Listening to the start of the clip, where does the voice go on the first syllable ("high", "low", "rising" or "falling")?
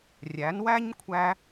rising